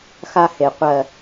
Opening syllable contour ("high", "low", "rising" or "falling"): high